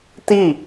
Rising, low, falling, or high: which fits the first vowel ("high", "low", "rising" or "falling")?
falling